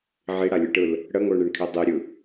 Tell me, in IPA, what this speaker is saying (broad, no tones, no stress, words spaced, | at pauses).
ʕiɽalʲœʈɯl | ɽəŋoɳɯɳkʰi dˤiɾʲɯ